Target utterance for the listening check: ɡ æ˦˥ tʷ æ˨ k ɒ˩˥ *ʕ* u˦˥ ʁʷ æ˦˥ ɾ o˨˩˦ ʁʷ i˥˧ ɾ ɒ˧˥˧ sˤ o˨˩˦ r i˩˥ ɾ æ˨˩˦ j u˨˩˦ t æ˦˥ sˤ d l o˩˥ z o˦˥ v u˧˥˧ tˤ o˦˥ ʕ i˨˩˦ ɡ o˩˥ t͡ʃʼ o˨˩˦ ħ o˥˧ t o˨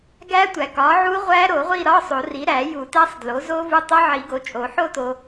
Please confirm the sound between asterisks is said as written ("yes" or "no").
yes